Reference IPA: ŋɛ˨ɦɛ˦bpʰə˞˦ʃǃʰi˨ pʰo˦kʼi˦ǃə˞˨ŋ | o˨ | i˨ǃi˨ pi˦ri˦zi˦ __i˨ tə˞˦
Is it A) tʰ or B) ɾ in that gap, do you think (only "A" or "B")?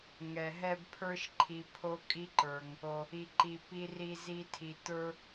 A